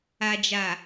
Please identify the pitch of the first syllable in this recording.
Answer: low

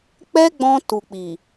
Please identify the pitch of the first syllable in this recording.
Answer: high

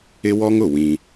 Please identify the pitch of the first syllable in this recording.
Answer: high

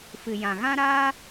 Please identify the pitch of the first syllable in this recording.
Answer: low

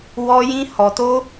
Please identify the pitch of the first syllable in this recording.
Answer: high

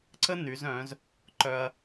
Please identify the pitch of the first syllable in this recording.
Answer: high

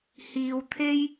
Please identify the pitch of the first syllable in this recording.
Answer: low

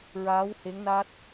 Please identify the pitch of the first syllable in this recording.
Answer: rising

